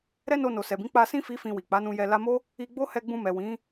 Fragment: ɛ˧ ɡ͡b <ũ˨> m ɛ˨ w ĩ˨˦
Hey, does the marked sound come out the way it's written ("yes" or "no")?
no